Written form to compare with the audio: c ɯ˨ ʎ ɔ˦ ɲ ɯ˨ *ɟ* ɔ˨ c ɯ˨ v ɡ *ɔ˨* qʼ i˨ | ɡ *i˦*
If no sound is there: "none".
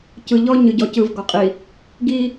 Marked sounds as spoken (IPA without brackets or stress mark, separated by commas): ɟ, ɔ˨, i˦